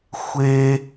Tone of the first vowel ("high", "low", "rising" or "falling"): high